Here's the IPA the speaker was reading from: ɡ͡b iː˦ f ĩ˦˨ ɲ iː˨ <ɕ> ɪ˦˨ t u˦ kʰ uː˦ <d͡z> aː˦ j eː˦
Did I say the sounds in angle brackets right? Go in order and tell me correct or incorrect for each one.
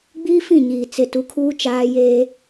incorrect: t͡s, incorrect: t͡ʃ

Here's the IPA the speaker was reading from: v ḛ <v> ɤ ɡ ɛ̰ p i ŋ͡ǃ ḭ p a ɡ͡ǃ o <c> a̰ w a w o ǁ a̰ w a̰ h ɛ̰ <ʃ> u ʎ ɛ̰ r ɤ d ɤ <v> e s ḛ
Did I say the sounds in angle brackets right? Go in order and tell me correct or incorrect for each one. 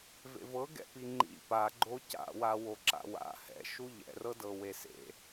correct, correct, correct, incorrect: w

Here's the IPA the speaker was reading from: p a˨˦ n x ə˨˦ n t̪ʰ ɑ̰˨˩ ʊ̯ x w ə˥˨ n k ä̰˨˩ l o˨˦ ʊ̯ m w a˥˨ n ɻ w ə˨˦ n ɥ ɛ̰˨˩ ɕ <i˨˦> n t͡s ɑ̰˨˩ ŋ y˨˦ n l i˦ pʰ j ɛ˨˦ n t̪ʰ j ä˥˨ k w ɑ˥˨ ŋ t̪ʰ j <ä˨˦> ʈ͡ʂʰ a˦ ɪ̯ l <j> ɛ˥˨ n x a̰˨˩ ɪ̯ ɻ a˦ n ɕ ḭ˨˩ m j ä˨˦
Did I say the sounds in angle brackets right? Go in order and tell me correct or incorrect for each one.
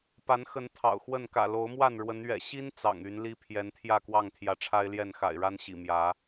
incorrect: i˦, correct, correct

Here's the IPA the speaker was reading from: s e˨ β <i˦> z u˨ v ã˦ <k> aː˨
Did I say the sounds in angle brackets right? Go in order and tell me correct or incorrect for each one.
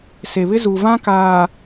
incorrect: ɪ˦, correct

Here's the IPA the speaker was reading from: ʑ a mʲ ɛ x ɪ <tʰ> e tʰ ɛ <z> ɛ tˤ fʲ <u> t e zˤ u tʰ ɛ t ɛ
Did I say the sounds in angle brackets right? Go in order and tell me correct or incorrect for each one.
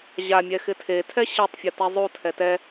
correct, incorrect: ɕ, correct

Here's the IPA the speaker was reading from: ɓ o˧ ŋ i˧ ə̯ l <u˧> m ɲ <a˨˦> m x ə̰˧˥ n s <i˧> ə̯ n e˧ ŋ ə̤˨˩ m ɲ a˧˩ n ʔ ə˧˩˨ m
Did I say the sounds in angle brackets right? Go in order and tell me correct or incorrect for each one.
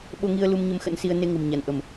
correct, incorrect: ə˨˦, correct

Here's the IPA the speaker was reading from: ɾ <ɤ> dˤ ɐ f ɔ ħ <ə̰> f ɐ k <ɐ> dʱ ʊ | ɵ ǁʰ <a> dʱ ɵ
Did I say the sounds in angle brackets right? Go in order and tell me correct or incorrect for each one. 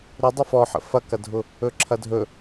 incorrect: ɵ, correct, correct, incorrect: ɐ

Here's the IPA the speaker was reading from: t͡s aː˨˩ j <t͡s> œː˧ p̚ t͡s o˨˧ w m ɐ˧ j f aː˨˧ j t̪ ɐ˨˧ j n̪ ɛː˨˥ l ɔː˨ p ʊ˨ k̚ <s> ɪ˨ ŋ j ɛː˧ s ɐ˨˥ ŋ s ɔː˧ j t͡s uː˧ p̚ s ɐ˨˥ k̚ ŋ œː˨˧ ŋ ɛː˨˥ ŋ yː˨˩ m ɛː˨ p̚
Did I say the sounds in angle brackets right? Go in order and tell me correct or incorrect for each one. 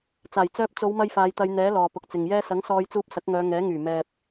correct, incorrect: t͡s

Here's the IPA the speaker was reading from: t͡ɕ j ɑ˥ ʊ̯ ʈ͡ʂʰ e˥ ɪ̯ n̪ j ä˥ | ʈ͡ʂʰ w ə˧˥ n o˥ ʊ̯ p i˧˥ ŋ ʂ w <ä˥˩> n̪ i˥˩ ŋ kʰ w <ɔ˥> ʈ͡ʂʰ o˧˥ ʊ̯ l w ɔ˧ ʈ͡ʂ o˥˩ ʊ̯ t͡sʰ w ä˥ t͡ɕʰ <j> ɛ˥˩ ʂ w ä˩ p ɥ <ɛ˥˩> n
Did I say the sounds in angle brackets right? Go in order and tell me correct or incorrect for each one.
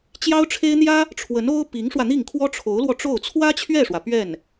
incorrect: ä˧, correct, incorrect: ɥ, correct

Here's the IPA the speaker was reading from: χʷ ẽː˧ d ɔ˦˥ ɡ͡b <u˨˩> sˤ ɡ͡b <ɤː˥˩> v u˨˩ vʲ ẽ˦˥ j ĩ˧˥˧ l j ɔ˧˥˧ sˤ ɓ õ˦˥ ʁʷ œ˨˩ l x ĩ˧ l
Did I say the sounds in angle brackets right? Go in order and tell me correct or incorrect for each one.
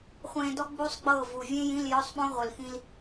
incorrect: u˦˥, correct

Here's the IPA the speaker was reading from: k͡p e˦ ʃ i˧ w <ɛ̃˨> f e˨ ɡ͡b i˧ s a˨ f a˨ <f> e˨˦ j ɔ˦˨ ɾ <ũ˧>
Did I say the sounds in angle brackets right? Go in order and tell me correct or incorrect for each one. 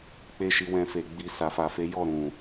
incorrect: ɛ̃˧, correct, incorrect: ũ˨

